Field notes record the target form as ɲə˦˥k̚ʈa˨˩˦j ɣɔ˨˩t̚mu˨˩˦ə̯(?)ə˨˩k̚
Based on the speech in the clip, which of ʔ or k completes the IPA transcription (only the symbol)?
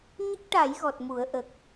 ʔ